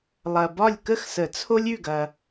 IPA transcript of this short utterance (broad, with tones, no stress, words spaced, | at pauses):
lˠɐ˨bɒ˥˨lʲ kə˥˨xsə˨˩˦t͡sʰo˦lʲ ʉ˥˨ɡɐ˨